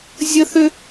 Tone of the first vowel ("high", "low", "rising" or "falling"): high